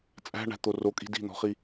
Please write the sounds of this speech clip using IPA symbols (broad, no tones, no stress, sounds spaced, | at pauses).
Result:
t͡sʼ æ̤ ɳ æ̤ t̪ o r o kʼ i̤ d i̤ n̪ ɔ̤ χ i